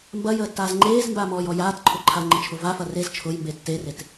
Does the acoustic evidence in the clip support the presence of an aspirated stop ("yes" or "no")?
yes